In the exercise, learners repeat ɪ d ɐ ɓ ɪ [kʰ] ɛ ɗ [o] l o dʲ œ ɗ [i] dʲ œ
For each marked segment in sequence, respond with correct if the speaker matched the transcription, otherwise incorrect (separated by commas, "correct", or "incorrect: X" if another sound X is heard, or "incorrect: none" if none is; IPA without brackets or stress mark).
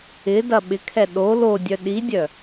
correct, correct, correct